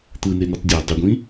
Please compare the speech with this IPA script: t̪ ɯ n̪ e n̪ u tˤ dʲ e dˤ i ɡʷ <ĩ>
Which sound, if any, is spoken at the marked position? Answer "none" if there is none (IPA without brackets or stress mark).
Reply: ĩ